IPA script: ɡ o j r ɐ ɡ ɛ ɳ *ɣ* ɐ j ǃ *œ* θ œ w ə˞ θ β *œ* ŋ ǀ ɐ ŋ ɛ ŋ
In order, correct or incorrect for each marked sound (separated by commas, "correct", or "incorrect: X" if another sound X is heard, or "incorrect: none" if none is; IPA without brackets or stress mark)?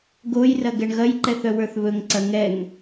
correct, incorrect: ɛ, incorrect: ɵ